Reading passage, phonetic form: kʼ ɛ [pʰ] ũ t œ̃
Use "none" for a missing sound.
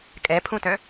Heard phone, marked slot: pʰ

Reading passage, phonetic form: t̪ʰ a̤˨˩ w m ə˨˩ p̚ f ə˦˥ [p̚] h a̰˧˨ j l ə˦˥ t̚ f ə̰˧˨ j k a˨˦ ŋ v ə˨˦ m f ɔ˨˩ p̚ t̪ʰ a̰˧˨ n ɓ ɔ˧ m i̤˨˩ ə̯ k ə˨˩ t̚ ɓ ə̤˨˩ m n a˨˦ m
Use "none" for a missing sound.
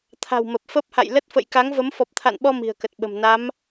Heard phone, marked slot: p̚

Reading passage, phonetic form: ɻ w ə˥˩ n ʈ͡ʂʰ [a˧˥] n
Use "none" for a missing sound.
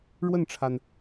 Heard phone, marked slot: a˩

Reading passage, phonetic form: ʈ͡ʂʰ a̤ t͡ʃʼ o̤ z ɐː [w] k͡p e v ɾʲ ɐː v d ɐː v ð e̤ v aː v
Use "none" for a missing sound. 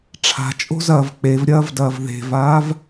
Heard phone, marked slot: v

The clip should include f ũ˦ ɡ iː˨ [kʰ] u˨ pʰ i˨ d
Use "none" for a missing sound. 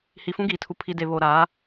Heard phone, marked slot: tʰ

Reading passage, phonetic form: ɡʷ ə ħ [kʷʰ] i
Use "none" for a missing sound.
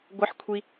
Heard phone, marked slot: kʷʰ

